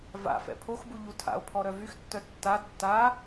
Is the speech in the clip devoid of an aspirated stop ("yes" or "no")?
no